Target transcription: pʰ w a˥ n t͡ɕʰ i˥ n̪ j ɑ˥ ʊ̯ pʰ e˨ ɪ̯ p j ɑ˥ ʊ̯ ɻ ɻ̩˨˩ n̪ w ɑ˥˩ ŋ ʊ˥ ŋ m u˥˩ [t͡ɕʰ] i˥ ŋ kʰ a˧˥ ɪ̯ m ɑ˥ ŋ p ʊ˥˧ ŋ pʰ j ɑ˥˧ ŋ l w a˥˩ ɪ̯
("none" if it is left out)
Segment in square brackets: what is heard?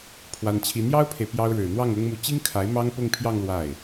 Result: t͡ɕ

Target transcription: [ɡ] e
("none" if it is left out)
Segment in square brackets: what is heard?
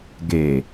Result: ɡ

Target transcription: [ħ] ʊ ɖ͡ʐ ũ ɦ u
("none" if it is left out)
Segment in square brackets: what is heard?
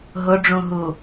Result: ɦ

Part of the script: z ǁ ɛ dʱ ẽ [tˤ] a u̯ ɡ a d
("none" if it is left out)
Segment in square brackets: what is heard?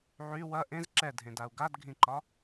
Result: d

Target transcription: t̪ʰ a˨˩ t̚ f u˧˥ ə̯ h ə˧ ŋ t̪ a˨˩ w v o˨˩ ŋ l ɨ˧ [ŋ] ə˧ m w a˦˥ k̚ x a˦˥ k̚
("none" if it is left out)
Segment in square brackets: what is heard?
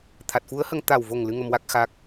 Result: ŋ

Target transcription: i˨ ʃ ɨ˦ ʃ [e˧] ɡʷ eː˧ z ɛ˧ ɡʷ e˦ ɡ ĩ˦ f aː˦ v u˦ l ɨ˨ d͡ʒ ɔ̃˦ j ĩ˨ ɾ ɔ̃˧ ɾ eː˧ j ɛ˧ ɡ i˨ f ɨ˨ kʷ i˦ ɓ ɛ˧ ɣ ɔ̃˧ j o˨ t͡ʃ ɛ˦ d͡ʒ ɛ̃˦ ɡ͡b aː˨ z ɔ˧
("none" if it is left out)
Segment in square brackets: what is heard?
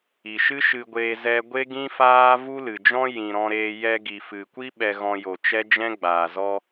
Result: ɨ˧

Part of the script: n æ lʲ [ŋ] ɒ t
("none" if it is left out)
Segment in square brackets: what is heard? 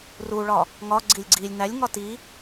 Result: ŋ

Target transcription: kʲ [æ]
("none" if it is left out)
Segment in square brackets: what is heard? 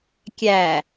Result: æ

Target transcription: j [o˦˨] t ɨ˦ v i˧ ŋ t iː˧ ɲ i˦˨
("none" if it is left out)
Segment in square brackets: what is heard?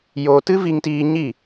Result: o˧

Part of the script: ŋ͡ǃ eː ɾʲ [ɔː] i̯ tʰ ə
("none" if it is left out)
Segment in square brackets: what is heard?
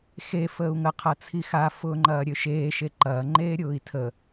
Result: ʊː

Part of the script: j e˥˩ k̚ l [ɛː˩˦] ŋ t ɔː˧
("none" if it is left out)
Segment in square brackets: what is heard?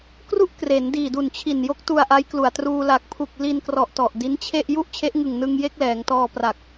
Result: ɛː˩˦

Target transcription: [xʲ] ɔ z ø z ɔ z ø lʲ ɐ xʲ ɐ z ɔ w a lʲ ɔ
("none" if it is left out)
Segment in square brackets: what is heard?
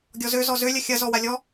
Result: ɡʲ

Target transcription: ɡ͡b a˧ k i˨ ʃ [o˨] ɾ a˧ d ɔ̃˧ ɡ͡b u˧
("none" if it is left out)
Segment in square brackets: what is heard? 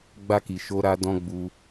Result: o˧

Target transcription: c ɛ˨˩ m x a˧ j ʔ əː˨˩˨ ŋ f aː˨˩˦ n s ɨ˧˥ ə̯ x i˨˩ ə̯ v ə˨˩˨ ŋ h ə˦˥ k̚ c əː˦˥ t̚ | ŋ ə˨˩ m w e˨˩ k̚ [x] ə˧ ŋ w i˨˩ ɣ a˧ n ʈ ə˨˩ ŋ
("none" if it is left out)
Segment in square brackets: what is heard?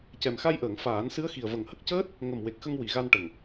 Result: x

